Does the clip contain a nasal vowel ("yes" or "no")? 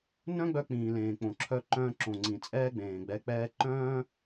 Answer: yes